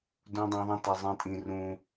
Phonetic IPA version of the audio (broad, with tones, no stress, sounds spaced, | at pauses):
d ũ˦ dˤ ẽ˦ ðˤ ĩ˦ t ɛ˦ zˤ ĩ˦ tʼ ĩ˦ r ũ˦